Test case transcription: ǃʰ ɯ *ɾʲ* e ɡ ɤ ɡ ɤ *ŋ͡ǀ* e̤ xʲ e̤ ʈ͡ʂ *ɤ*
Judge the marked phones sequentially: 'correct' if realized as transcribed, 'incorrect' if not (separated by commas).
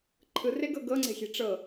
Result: incorrect, correct, correct